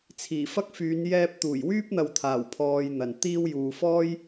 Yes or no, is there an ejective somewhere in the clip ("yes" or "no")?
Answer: no